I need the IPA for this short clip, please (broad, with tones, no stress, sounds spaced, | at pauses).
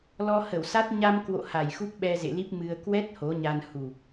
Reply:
l ɔ˧ h ə˧˩ w s a˦˥ t̚ ɲ a˧ m k w o̰˧˨ h a˨˩ j x u˦˥ k̚ ɓ ɛ˧ z ḛ˧˨ l i˦˥ p̚ m ɨ˧ ə̯ k w ɛ˦˥ t̚ h o˨˦ ɲ a˧ n h u˨˩